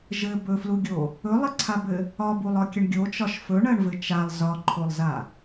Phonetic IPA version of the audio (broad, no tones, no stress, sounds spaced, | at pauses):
ʒ ɘ b ɵ f l u ɡʲ o | ɵ lˠ ɘ ǀʰ a b ɘ | ɒ b u lˠ ɒ kʲ ə ɳ ɡʲ o t͡ʃ ɒ ʃ f ɵ ɳ ɜ ɳ v ɘ t͡ʃ a lˠ z ɒ ǃʰ o lˠ z a